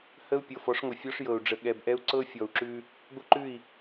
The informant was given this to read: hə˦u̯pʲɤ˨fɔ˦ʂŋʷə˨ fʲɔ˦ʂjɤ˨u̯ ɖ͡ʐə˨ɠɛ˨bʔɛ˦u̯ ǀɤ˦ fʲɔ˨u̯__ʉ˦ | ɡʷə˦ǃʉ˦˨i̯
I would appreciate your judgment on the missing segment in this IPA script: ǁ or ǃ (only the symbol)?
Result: ǁ